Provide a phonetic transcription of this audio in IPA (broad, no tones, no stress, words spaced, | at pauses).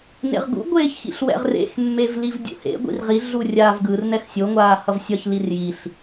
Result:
nḛʁɡṵ ɡʷeːçxḭɬwɛ̰ʁrḛx mːevlivdʲṵhḛ ɡʷḭrʁi ɮurʲaːvɡɯr nɛxsʲo ŋʷaːhʌvsʲʌç lirjiɬ